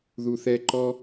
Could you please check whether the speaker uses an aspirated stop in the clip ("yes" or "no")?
no